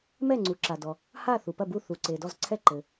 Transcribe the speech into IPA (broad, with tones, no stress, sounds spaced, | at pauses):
m ɛ˥˨ ŋ͡ǀ u˩ ǁ a˩ d ɔ˩ | h a˥˨ θ u˩ p ɐ˥˨ b u˥˨ θ u˩ ǀ e˩ d ɔ˥˨ z ǀʰ ɛ˥˨ ǃ ɘ˩